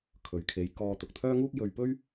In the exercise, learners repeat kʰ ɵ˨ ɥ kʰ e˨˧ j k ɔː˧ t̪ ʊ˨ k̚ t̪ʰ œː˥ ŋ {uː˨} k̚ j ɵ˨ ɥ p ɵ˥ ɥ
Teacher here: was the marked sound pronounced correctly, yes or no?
no